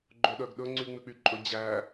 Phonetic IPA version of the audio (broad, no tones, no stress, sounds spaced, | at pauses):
ɡ͡ǃ ɵ ɗ œ ɡ ɗ ɵ ŋ͡ǀ y ŋ͡m ʉ k͡p y ǃʼ ɵ d͡ʑ æ